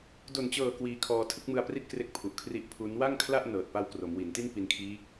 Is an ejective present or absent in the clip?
absent